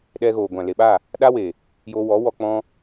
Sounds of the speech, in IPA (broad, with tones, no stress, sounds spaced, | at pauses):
ɗ ɛ˧ ɣ oː˨ ɡʷ ã˨ l e˨ ɓ a˦˨ | ɗ a˦ w e˨ | j oː˧ w ɔ˨˦ w ɔ˧ k͡p ɔ̃˧